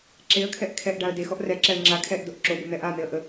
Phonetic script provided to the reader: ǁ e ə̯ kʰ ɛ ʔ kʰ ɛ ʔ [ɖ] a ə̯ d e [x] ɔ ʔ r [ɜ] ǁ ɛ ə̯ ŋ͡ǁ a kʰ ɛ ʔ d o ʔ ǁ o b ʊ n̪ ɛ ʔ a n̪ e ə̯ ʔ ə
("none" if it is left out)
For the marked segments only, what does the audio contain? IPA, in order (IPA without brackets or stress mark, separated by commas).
ɖ, x, ɛ